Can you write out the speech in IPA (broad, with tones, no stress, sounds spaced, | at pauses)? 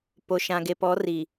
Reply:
p o˨ ʃ ã˨ ɡ e˨ p ɔ˨˦ r i˨